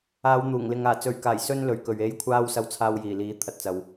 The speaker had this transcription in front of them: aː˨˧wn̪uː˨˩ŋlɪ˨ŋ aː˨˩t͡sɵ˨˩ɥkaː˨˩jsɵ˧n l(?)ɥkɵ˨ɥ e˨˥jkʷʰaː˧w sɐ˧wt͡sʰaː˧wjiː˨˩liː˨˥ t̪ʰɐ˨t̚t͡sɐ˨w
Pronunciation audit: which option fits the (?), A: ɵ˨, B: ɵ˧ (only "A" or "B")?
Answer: A